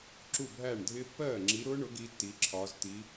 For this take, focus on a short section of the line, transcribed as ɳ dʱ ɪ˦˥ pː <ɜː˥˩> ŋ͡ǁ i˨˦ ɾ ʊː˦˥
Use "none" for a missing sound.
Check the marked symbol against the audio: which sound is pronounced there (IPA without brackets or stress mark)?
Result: ɜː˥˩